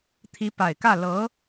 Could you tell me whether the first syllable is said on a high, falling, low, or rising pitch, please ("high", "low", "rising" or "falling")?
rising